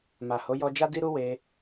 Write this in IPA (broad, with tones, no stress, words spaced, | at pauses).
ma˨ho˨˦ jɔ˧d͡ʒa˦ di˦ɾu˦ we˧